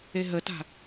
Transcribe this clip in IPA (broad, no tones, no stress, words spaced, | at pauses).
eɦəta̤